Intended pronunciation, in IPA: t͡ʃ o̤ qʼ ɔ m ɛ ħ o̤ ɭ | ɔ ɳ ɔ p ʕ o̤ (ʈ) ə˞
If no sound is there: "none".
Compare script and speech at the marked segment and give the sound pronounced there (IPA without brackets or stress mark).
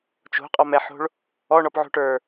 ʈ